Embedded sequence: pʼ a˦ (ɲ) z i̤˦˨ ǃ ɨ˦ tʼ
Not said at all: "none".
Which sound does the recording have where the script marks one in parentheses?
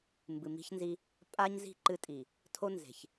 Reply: ɲ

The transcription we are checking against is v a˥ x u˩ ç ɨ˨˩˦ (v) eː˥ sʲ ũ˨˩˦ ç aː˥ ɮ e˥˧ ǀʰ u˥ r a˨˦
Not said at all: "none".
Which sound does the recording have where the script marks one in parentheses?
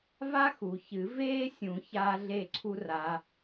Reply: v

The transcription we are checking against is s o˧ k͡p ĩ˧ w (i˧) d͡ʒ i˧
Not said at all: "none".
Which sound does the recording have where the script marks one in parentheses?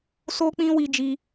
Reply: i˧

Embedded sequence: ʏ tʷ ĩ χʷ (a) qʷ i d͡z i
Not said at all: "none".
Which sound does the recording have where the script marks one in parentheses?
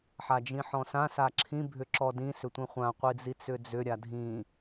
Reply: ã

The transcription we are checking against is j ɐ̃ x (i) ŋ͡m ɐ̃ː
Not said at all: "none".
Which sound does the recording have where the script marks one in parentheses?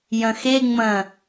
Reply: e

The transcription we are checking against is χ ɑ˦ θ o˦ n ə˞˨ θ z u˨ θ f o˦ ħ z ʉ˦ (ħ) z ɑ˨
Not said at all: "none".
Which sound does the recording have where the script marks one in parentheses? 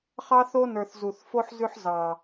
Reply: ħ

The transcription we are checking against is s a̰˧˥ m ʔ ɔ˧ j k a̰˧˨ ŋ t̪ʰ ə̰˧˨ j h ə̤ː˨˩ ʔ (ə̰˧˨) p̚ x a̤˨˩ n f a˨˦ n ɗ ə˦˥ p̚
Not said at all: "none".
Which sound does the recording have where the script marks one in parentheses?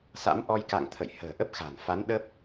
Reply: ə˦˥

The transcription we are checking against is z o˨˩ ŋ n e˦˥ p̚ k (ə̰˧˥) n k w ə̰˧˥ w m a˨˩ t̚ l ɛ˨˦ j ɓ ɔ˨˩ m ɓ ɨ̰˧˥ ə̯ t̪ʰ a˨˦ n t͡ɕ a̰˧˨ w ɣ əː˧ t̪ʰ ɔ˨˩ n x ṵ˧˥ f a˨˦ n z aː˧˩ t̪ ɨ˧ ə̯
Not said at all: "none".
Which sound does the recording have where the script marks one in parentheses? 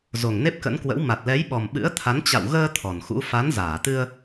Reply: ə̰˧˥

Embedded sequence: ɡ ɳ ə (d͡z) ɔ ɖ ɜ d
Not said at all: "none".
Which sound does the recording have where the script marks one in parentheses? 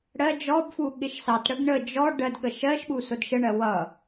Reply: d͡ʒ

